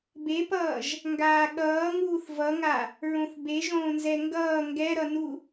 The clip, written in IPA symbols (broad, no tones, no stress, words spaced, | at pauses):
bepʌːʒ | ŋɡaːɠʌːŋuːθ vʌŋa | ɹõθbeʒõːnzɛ ŋɡʌː ŋɡɛɾʌnu